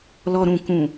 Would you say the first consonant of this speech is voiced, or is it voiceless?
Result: voiced